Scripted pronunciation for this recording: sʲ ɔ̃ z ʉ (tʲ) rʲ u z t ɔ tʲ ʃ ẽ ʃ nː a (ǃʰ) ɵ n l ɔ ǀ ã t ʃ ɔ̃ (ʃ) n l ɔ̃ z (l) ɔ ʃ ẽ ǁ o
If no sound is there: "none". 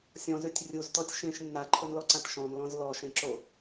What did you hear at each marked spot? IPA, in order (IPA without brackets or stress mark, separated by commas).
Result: tʲ, ǃʰ, none, l